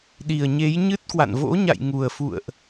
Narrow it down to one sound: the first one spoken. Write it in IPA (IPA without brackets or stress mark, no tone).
ɗ